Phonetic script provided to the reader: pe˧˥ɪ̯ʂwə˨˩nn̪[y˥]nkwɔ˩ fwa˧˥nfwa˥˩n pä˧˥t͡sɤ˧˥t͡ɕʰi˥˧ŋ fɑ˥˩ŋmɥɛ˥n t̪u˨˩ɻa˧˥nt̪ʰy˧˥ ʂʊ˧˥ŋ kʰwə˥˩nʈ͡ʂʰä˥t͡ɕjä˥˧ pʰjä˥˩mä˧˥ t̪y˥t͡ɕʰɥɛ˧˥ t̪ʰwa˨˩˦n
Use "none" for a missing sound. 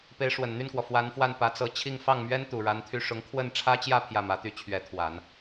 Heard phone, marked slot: y˥˩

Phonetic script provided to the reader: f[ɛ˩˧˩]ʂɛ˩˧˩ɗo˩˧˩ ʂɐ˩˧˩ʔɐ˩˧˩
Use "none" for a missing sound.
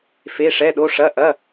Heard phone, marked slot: e˩˧˩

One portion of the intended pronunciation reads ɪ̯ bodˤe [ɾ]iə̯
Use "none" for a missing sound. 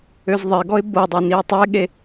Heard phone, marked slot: n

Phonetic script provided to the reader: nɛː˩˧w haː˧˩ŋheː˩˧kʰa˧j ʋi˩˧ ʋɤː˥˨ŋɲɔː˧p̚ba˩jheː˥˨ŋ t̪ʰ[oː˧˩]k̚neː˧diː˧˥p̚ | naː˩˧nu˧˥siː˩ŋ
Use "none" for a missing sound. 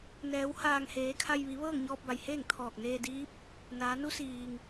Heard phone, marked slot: ɔː˧˩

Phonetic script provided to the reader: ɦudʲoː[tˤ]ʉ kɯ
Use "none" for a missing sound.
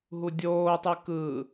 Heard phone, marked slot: tˤ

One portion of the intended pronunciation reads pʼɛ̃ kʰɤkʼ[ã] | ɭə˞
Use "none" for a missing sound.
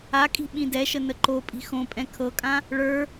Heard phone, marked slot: ã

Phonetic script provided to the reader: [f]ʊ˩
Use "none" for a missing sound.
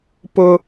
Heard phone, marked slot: p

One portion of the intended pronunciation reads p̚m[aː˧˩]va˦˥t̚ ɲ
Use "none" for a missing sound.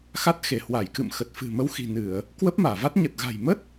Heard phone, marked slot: aː˧˩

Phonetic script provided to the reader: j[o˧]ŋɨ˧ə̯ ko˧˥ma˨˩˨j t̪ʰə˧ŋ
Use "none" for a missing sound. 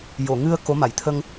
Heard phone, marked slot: o˨˩˨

